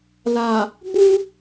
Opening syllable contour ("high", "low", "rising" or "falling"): low